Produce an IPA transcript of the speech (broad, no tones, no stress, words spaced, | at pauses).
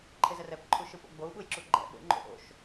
ǃʰezɛrɛp ǃʰuʃɯpo̰ɡ͡bou̯ ɓujǁuɡ͡ǃɛ̰ ɓo̰ ŋ͡ǃo̰ʔo̰ʃ